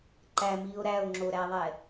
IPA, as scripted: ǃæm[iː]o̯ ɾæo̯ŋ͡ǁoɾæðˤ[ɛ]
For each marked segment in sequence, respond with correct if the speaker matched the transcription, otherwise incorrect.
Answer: correct, correct

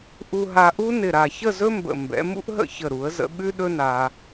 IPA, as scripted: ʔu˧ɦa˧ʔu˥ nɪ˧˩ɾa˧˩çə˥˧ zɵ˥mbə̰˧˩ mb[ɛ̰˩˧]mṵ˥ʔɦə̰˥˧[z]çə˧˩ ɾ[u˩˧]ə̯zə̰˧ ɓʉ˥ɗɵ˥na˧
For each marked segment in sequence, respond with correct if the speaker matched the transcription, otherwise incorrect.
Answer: correct, incorrect: none, correct

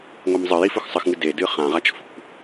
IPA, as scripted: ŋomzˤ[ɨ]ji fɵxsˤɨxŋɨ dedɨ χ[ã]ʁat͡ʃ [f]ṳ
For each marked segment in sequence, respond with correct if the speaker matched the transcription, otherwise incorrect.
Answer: correct, correct, correct

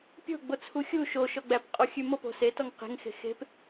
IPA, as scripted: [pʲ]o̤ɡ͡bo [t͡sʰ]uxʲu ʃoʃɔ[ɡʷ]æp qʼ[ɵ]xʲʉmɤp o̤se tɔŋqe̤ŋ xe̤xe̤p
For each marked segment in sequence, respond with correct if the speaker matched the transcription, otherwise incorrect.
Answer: correct, correct, incorrect: ɡ͡b, incorrect: o

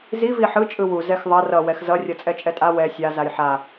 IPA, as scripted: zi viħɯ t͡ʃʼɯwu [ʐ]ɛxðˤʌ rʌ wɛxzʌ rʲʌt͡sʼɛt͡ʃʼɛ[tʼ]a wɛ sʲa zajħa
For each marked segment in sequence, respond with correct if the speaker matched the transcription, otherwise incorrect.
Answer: incorrect: z, correct

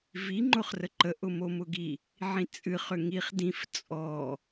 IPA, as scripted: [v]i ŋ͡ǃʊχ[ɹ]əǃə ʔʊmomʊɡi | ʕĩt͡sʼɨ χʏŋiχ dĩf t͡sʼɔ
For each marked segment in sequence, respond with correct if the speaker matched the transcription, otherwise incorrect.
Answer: correct, incorrect: r

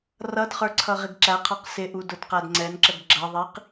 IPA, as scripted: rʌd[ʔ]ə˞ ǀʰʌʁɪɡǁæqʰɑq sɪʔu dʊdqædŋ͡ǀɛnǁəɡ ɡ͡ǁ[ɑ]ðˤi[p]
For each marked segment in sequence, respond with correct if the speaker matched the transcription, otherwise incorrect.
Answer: incorrect: χ, incorrect: ʌ, incorrect: q

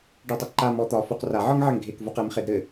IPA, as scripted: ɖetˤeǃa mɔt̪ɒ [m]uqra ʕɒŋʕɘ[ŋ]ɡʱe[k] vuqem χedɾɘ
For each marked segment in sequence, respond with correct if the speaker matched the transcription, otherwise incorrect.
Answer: incorrect: f, correct, correct

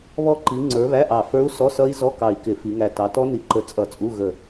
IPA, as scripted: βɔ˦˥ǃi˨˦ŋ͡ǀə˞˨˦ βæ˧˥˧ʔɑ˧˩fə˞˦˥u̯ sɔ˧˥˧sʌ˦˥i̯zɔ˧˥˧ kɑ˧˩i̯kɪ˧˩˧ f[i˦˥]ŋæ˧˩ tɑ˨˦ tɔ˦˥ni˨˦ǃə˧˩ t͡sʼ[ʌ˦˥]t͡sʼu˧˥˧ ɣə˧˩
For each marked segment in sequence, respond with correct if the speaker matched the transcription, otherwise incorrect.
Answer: incorrect: i˨˦, incorrect: ʌ˧˩˧

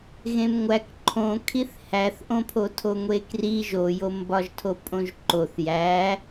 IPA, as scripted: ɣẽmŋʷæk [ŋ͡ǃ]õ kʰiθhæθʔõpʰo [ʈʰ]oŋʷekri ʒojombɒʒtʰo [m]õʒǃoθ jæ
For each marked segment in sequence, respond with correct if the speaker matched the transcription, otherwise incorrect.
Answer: incorrect: ǃʰ, incorrect: tʰ, incorrect: pʼ

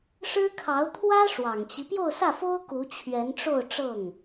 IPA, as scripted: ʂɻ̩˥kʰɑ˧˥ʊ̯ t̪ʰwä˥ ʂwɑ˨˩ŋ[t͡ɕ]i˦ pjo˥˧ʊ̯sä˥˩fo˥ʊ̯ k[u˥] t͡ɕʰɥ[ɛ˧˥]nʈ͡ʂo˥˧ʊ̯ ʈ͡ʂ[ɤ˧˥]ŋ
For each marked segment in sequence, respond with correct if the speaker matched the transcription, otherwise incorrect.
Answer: correct, incorrect: u˧˥, correct, incorrect: ɤ˥˩

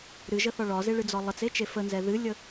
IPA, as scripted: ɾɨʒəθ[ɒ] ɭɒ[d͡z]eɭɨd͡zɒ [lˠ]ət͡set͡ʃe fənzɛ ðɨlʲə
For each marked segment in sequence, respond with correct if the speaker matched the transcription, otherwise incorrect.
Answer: correct, incorrect: z, correct

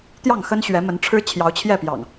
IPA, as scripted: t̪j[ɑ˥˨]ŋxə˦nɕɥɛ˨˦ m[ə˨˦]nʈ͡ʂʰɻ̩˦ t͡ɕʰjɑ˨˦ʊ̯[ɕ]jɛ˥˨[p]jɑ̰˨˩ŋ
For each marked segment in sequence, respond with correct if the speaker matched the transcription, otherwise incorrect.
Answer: correct, correct, incorrect: t͡ɕʰ, correct

